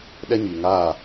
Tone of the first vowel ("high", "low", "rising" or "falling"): high